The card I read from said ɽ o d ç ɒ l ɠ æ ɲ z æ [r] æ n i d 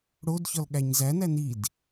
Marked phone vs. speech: incorrect: n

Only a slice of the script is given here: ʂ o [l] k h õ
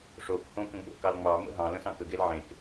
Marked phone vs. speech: incorrect: none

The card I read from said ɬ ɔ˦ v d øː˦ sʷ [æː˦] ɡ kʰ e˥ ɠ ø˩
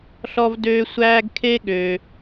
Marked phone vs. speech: correct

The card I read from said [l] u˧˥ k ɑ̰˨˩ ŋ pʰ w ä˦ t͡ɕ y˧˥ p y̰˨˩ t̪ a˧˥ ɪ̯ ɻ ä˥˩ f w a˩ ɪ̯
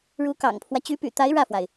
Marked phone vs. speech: incorrect: ɻ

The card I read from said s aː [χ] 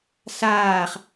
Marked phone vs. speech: correct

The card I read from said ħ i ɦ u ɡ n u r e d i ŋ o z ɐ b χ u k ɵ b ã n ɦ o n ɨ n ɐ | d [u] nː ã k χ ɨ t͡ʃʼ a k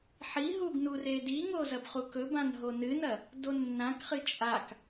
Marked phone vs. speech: incorrect: o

